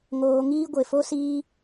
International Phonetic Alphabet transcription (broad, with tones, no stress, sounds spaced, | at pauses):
ŋ oː˦ ŋ iː˦ ɡʷ e˧ f o˦ s iː˦